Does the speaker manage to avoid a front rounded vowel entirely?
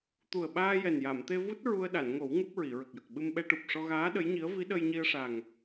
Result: yes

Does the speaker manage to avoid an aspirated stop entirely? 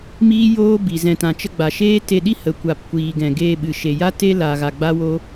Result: yes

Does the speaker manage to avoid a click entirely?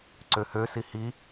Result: no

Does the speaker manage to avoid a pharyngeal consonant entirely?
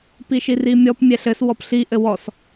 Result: yes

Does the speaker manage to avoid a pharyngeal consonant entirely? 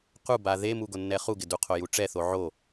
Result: no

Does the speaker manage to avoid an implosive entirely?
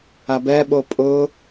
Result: no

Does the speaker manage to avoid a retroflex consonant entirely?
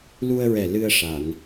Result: no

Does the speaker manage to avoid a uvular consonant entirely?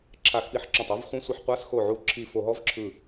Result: no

